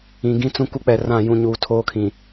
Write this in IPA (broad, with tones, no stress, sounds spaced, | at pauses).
ĩ˨ ɡ ĩ˦ t͡s ũ˦ k u˦ k͡p ɛ˨ r ã˦˨ j ũ˦˨ ɲ uː˨ tʰ oː˦ kʰ ĩ˨